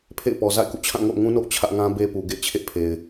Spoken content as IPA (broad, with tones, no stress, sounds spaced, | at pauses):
pʰ ḛ˦˨ ɪ̯ p ɔ˨ z a̰˦˨ ɪ̯ k ṵ˦˨ t͡ɕʰ ã˦˨ ŋ o̰˦˨ ʊ̯ ŋ ũ˦ n o̰˦˨ ʊ̯ t͡ɕʰ ä˦ ʔ ŋ ã˦ b e˦ p u˨ ɡ ḛ˦˨ ɪ̯ t͡ɕʰ ḛ˦˨ pʰ e˨ ɪ̯